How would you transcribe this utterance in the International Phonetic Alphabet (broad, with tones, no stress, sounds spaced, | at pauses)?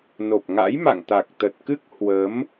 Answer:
n o˨˩ p̚ ŋ a̰˧˥ j m a̰˧˨ ŋ t̪ a˨˩ k̚ t̪ ə˨˩ t̚ k ɨ˦˥ k̚ h w ə˨˦ m